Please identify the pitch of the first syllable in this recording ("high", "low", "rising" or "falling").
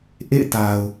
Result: falling